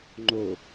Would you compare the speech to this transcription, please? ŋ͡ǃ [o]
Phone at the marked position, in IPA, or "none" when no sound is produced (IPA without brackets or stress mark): o